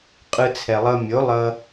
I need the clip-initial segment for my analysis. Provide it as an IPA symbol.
qʼ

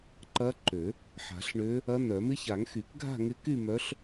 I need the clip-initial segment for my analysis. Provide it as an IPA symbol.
ǃ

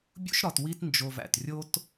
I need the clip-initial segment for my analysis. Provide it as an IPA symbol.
bʲ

